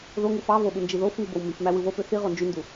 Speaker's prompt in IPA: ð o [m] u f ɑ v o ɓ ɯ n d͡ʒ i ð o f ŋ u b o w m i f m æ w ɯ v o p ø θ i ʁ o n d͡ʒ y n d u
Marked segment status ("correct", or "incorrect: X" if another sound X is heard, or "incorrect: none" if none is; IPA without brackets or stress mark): incorrect: ŋ